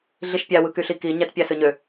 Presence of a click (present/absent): absent